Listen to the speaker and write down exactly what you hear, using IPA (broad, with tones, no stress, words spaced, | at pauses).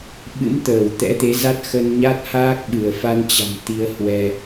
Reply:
ɓɨ̰˧˥mt̪əː˧˩w t̪ɛ̰˧˥t̪e˨˦ za˦˥t̚ xə˧nɲa˦˥t̚haː˦˥k̚ ɓɨ˧˩ə̯fa˧nt͡ɕa̤˨˩m t̪i˧ə̯hwɛ˧